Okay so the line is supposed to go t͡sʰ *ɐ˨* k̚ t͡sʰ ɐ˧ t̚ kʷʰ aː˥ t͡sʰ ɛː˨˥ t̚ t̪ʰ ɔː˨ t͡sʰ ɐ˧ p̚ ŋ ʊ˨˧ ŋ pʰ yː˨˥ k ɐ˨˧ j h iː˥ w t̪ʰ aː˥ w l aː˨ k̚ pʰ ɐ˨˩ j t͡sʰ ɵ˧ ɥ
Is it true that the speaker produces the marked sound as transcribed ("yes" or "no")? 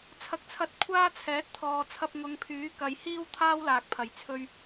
yes